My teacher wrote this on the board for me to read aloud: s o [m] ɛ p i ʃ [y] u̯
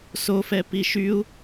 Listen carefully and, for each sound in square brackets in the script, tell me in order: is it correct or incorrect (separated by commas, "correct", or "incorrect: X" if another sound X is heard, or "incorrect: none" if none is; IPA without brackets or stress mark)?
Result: incorrect: f, correct